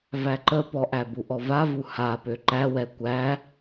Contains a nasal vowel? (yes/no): no